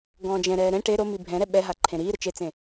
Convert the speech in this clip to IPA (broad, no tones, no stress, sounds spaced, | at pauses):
ɡ ɔ̃ː d͡ʒ ɛ̃ ɾ ɛː ɾ ɛ̃ ʈ e ɾ o m i bʱ ɛ̃ ɾ ɛ ɓ ɛ ɦ a ǃʰ ẽ ɾ iː ɾ ʊ t͡ʃ e t͡s ẽ